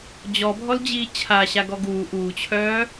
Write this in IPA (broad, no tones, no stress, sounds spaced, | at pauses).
d͡ʑ ɔ bʱ ɔ l d͡ʑ iː t͡ɕʰ a ɕ a ɡ ɔ ɡ uː ʔ uː t͡ɕʰ œː